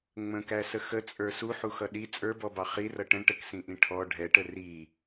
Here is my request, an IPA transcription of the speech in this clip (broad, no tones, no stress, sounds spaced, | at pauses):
ŋ͡m ə̃ k æ s ə x ə t͡sʼ ə˞ s u ħ u x ʌ ɗ i t͡sʼ ə˞ b ɔ b ɑ χ i r ʌ ʈ ə̃ ɳ ʈ ə k s ĩ ʔ ĩ ʈʰ ɔ ɖʱ ɛ ʈ ə r i